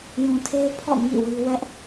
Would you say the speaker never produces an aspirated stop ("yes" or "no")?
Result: no